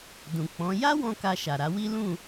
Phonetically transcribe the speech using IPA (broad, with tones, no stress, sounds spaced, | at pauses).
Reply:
d ũ˨ k͡p ɔ̃˨˦ j a˦ w ɔ̃˧ k a˧ ʃ a˨ ɾ a˧ w i˦ l ũ˦˨